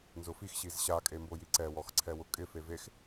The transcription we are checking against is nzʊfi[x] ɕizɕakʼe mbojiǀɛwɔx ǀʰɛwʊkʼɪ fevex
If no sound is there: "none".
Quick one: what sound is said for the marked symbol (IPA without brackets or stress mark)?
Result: x